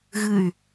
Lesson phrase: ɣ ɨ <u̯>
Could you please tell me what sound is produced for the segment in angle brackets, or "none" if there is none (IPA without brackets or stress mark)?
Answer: y̯